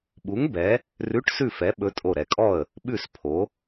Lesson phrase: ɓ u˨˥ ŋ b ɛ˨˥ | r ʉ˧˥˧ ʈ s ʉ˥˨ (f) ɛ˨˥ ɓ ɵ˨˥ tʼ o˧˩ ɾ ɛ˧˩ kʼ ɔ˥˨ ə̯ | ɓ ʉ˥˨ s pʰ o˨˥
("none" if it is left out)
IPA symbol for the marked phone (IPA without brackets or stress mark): f